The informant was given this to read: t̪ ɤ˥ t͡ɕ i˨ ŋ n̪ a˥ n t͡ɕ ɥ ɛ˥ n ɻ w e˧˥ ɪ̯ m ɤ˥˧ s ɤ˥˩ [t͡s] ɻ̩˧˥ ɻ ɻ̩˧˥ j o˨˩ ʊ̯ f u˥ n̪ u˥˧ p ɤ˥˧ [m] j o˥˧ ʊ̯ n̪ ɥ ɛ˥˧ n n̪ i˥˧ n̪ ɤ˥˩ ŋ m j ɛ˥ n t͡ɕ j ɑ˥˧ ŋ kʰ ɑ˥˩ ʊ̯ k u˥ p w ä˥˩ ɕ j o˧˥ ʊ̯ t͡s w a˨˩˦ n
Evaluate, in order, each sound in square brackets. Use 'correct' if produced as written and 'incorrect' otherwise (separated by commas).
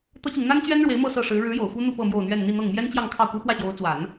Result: incorrect, correct